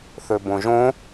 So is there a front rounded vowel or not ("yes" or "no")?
yes